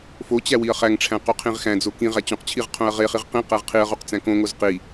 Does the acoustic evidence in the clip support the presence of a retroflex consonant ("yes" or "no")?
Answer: yes